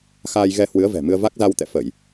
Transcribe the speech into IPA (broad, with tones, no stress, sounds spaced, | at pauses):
x aː˧ j ɣ ɛ˧ h w ɨ˨˦ ə̯ v ɛ̤˨˩ m ɨ˧ ə̯ v a˦˥ k̚ z a˧ w t̪ ɛ̰˧˨ f ə˧˩˨ j